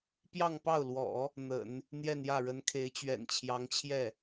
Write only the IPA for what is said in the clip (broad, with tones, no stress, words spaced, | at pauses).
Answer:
pjɑ˥˧ŋpɑ˥˩ʊ̯lwɔ̰˨˩˦ | n̪ə̰˨˩˦n | n̪jɛ˥˧njä˥˩ɻə˧˥nkʰe˧˥ɪ̯ t͡ɕɥɛ̰˨˩nt͡ɕʰjɑ˧˥ŋt͡ɕʰjɛ˥˩